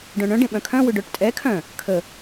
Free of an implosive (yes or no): no